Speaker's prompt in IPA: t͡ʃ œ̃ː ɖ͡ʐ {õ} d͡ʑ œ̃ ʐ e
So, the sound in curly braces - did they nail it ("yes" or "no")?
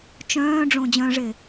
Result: yes